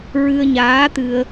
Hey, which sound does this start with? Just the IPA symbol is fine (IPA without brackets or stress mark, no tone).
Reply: ɹ